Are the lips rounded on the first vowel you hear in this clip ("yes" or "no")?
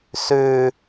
yes